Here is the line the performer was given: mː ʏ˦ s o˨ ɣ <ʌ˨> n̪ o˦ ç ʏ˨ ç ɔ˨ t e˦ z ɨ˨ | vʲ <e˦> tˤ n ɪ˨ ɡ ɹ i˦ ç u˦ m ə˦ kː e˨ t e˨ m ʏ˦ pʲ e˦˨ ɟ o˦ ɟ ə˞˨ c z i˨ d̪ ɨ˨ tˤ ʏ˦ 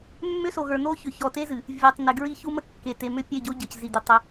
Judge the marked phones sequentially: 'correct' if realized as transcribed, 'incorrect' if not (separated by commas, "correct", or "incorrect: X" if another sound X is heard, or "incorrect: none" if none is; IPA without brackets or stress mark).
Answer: incorrect: ə˞˨, incorrect: e˨